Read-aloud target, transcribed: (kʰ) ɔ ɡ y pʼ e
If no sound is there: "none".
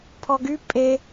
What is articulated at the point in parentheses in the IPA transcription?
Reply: pʰ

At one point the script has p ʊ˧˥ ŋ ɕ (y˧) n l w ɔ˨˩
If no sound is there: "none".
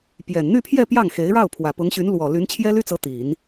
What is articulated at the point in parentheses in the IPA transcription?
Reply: y˧˥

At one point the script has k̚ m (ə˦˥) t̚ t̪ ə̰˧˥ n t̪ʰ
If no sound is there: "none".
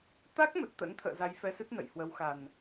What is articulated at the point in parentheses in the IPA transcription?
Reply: ə˨˩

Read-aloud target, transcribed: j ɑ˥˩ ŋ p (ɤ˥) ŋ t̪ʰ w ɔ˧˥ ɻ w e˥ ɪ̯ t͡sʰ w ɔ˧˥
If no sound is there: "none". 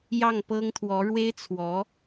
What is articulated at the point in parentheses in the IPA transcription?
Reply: ɤ˥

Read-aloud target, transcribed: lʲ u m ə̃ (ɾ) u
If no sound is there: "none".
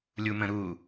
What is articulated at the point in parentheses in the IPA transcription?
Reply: ɾ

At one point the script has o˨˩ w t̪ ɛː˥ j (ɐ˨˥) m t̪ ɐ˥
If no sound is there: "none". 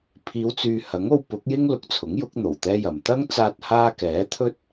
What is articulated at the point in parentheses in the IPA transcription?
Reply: ɐ˨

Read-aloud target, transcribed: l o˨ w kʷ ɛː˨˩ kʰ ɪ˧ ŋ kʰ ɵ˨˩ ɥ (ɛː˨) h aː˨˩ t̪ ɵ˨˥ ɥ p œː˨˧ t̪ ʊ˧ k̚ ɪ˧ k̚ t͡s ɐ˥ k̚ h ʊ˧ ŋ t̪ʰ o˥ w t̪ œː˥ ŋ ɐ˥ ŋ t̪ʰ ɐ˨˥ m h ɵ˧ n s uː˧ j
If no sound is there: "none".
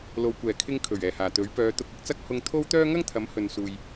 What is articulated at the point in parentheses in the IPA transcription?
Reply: ɛː˨˩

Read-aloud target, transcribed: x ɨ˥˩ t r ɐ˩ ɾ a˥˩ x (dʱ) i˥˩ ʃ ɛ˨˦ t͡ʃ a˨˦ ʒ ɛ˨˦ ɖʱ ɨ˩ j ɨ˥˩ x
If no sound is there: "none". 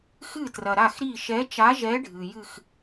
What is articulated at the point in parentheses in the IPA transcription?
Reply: ɾ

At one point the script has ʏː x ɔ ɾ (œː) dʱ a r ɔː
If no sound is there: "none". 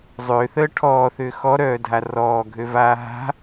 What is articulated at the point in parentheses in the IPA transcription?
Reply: œː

